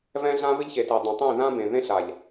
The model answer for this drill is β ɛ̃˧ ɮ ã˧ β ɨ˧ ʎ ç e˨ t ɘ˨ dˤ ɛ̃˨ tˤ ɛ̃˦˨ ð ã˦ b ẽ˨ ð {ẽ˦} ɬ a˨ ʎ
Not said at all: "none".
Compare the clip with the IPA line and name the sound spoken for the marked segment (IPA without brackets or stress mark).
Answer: ẽ˦